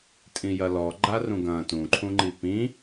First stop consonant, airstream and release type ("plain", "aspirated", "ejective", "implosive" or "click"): ejective